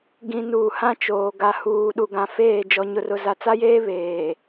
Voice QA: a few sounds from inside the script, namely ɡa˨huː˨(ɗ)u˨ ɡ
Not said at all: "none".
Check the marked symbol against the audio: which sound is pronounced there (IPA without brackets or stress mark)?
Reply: ɗ